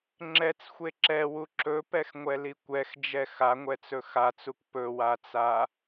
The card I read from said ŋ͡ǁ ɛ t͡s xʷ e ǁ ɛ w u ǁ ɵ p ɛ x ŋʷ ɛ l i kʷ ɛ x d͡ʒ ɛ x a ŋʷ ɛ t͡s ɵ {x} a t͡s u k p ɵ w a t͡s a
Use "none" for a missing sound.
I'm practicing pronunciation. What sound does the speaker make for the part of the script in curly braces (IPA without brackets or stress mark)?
x